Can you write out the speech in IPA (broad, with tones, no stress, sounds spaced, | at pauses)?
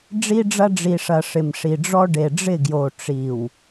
ɖ͡ʐ i˦ ɖ͡ʐ ɐ˦ ɖ͡ʐ i˨ ʂ ɐ˨ ʂ ɪ˨ m ʂ i˨ ɖ͡ʐ ɔ˦ ɖ e˨ ɖ͡ʐ ɪ˦˨ ɡ j o˨ ʈ͡ʂ i˨ w